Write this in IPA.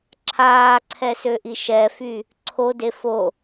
ǁʰ aː ǀʰ ɛ s ø ʔ i ʃ ɛ f y | ǀʰ o d e f o

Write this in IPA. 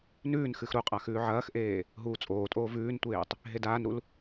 n ʉː n x ɨ x ɾ u qʼ a x ʉː ʕ ɐː x ʔ eː | ɦ uː t͡sʼ oː tʼ oː v ʉː n tʷ eː tˤ | ɦ e d aː n ɾ u l

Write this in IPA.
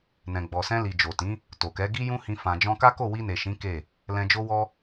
n ɛ̃˨ ɡ͡b ɔ˨ s ɛ̃˧ l i˨ d͡ʒ o˨ t ĩ˨˦ | t o˨ k ɛ˨˦ ɡ i˦ j ũ˦ h ĩ˧ f ã˧ d͡ʒ ɔ̃˦ k a˦ k o˦˨ w i˧ n e˨ ʃ ĩ˨˦ k e˦˨ | l ɛ̃˧ d͡ʒ o˦ w ɔ˦

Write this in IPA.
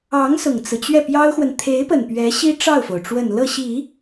ɑ˧˥ ŋ s ʊ˨˩ ŋ t͡s ɹ̩˦ t͡ɕ ɥ ɛ˥˩ p j ɑ˥ ʊ̯ x w ə˨ n t̪ʰ e˧˥ ɪ̯ p ə˨˩ n p ɥ ɛ˧˥ ɕ i˥ ʈ͡ʂ ɑ˥˩ ʊ̯ f o˩ ʊ̯ ʈ͡ʂ w ə˨˩ n l ɤ˥˩ ɕ i˨˩˦

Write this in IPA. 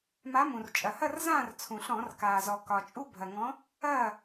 m a˨˥ m ũ˩ r t͡ʃʼ ɐ˩ h ɐ˥˨ r z ãː˥˨ r t͡sʰ ũ˩ ɬ ɔ̃˧˩˧ r k aː˩ z ɔ˩ k ɒ˩ t͡ʃʼ u˦ bʱ ɐ˩ ŋ ɔ̃˨˥ | ɐː˥˨

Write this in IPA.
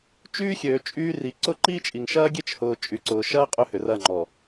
t͡ʃ yː˦ xʲ øː˨ t͡ʃʼ yː˦ r i˨ ǀ ʊ˦ ǃ iː˦ t͡ʃʼ i˨ ŋ ʃ ɐː˦ ɡʲ e˦ t͡ʃ h ʊː˨ t͡ʃʼ y˨ ǀ ʊː˨ ʃ ɐː˦ qʼ ø˦ h ʏ˨ r ɐ˦˨ ŋ͡ǃ ɔ˨

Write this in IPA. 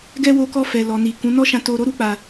ɡ ɛ˦ w o˧ k ɔ˧ f ɛ˨ l ɔ˨ n i˨ k ũ˨˦ n ɔ˦ ʃ ã˧ t o˧ ɾ o˦ ɾ u˦ k͡p a˧

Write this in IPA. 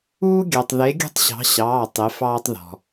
uː˥ ɡʲ ɑ˧ tˤ ð e˧˥ ɡʲ ṳ˥ tˤ ɕ ɑ̤˧˥ ɕ ɑː˧˥˧ tˤ e˧˥ f ɑː˥ tˤ ð ɔ̤˧

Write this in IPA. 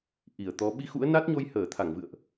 ʔ i˧˩ ə̯ t̪ ɔ˨˦ ɓ i˧ x ṵ˧˥ ə̯ n a˦˥ t̚ ɲ o˧ j h əː˧˩ t̪ʰ a˧˩ ŋ v ɨ̰˧˨ ə̯ ʔ

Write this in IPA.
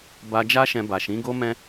b a˧ d͡ʒ a˦ ʃ ɛ̃˧ b a˨ ʃ ĩ˨˦ ɡ o˦ m ɛ̃˦

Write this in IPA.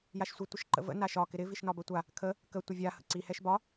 j a ʃ sʷ ɪ tʷ ɪ ʃ ǃ ə̰ v ə̰ n a ʃ ɒ k ɪ ɾ ɪ v i ʃ n ɒ b ə tʷ a | kʰ ə | k ə tʷ ɪ vʲ a h ə̰ ǀ i h ɛ ʃ b ɒ

